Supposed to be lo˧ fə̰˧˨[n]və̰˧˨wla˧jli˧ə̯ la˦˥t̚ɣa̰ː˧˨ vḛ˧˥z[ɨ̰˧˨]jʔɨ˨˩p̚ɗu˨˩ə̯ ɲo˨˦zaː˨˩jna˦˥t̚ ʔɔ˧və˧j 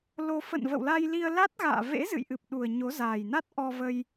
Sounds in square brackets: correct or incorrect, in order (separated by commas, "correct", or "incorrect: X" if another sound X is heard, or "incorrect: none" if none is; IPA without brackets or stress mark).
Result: correct, correct